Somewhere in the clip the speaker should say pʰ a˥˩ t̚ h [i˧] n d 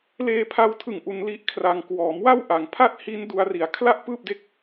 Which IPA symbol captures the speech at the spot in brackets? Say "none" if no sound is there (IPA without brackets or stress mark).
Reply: i˦˥